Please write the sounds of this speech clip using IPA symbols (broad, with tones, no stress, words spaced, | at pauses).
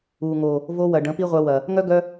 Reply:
uː˨ŋo˨ | vo˧wɐ˨ ɖə̃˨˦pi˦ʁʷœ˧wɐ˨ | ŋœ˦ ɡœ˦